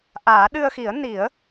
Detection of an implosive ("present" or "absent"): present